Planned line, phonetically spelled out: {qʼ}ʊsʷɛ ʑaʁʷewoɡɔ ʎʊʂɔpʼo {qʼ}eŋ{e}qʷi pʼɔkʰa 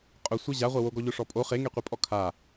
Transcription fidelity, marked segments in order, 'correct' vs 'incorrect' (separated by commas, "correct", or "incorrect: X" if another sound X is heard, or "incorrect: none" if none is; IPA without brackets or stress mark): correct, incorrect: χ, correct